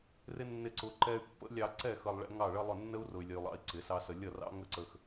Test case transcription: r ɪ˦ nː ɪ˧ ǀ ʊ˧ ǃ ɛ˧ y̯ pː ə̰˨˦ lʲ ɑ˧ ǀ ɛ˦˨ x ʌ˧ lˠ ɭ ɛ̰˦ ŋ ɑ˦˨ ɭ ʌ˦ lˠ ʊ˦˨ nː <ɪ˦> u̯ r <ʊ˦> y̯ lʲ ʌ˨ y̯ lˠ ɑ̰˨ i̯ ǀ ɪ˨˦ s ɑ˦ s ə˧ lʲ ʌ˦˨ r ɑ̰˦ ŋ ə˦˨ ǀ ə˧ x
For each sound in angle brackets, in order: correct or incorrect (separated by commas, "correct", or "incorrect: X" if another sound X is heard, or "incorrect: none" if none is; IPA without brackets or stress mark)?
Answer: incorrect: ə˦, incorrect: ʊ˨